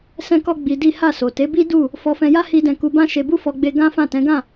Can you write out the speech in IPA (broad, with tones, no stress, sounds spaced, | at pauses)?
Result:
s ɛ̃˦ k ɔ˦ ɡ͡b i˧ d i˦ h a˦˨ s o˨ t e˨˦ b i˦ d u˦˨ | f ɔ˧ f ɛ̃˧ j a˦ h i˦ d ɛ̃˦˨ k u˧ b ã˦ ʃ e˧ b u˦ f ɔ˧ ɡ͡b e˧ ɡ ã˦ f ã˦˨ t ɛ̃˨˦ ɡ ã˦˨